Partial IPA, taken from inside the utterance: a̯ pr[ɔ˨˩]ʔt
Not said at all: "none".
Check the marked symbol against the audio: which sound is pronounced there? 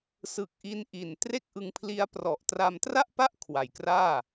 ɔ˨˩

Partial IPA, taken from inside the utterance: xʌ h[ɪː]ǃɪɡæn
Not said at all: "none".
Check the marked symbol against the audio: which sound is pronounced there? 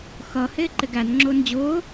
ɪː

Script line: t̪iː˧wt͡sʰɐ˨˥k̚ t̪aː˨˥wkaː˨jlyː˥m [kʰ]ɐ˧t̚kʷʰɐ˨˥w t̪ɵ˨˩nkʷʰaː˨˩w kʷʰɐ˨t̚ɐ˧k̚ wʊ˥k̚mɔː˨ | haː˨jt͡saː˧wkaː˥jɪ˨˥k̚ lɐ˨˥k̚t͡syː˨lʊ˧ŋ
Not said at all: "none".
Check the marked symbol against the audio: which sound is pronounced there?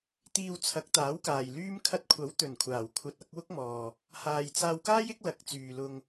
kʰ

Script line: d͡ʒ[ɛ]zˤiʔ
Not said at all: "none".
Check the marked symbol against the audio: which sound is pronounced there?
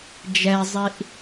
ɛ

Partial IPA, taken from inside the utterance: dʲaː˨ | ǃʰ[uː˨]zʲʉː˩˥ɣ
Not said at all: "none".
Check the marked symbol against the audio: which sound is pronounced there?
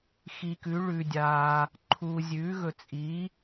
uː˨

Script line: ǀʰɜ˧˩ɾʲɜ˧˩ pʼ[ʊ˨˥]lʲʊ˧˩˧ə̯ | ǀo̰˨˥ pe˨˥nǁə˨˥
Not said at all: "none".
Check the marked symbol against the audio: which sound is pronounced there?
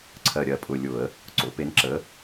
ʊ˧˩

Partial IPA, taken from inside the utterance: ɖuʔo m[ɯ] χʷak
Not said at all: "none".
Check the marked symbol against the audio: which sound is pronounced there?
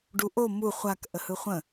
u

